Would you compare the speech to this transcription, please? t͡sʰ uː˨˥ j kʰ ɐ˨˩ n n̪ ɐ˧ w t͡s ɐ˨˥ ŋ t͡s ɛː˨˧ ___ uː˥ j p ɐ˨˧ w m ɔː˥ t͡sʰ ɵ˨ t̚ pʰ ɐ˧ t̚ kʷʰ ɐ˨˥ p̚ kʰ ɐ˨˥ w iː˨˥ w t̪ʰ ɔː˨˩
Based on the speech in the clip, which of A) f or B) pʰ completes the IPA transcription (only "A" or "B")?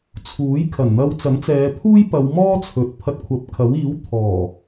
B